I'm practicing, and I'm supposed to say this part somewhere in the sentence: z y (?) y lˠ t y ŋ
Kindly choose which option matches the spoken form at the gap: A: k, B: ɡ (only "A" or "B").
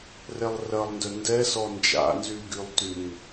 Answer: B